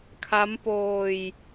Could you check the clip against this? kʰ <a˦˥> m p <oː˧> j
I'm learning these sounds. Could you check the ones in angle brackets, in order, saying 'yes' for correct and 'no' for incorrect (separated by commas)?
yes, yes